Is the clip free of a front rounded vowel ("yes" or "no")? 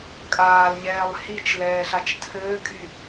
no